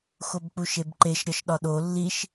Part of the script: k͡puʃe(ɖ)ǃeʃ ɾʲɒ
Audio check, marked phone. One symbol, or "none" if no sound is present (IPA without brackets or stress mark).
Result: b